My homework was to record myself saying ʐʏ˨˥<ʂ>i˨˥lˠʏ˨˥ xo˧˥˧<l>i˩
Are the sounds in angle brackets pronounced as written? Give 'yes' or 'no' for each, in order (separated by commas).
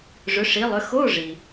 yes, no